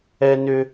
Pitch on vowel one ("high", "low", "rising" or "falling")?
high